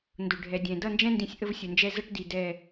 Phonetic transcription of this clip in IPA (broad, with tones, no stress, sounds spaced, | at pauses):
n d ʊ˨ ɖʱ ɛ˨ dʲ ɛ̃˨ d ʌ˦˨ n d͡ʒ ɛ̃˦ n d ĩ˨ sʲ ʔ ə˦ v sʲ ʊ˨ n d͡ʒ ɛ˦ z ʌ˦ ʈ d i˨ d ɛ˦˨